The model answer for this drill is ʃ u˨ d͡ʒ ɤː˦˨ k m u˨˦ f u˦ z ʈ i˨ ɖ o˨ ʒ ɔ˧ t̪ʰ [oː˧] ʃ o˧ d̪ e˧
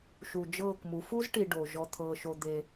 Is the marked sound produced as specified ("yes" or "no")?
no